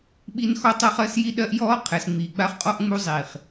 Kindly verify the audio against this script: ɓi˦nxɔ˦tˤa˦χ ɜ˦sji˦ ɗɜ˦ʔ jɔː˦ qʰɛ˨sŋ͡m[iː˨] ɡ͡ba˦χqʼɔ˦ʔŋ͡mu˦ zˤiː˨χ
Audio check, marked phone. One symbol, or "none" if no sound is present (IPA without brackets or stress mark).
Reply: iː˨